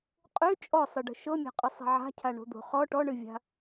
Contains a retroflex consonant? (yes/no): yes